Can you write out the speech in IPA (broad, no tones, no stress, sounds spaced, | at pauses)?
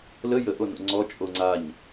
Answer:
l ə j ə ʔ o n o̰ ŋ͡ǀ ɔ t͡ʃʼ o ŋ͡ǀ a ɲ